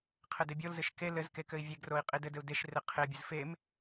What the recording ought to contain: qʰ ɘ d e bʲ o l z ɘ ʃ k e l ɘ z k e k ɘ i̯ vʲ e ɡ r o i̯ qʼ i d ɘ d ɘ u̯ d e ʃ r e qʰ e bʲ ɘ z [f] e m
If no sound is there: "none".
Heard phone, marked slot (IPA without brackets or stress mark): f